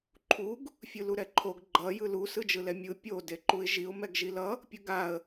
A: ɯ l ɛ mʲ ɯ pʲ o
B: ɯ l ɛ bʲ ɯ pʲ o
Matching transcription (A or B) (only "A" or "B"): A